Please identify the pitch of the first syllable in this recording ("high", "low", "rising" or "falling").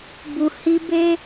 low